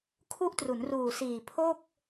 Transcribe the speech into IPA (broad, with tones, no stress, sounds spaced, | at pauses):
kʰ u˦˥ ʔ t r u˩˦ n r uː˨˩ s iː˨˩ pʰ o˥˩ k̚